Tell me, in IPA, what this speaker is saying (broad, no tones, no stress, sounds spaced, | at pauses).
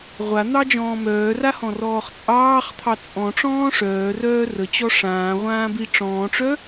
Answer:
ʁʷ a n̪ ɑ d͡ʒ ɔ̃ː m œː r a h ɔ̃ r ɔː χ t͡sʼ ɑː χ t̪ʰ ɑ t͡sʼ ɔ̃ ʈ͡ʂ ɔ̃ː ʂ œː r œː r ə t͡ɕ ɔ ʂ ãː ʁʷ ãː b i ʈ͡ʂ ɔ̃ː ʈ͡ʂ œ